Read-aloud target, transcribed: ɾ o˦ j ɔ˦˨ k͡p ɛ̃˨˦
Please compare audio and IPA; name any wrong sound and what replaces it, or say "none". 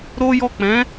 none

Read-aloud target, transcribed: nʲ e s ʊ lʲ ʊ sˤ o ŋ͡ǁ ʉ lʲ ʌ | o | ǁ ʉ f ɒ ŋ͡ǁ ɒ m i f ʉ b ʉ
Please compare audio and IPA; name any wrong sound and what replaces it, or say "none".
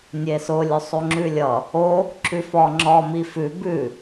none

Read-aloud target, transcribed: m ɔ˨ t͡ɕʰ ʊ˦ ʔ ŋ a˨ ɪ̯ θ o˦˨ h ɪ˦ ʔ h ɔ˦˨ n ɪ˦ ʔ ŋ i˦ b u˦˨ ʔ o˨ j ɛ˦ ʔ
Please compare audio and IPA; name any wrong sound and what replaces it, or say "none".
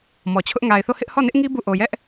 none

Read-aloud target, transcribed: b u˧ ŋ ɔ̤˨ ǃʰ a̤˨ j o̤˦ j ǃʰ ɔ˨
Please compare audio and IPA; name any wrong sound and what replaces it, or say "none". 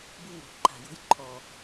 ɔ̤˨ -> o̤˨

